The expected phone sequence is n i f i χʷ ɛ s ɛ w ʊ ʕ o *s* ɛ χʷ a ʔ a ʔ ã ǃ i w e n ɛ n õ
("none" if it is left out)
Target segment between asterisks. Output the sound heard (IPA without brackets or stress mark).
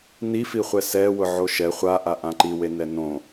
ʃ